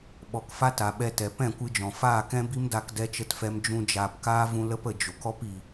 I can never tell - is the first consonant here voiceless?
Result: no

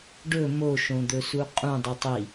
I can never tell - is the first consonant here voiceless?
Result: no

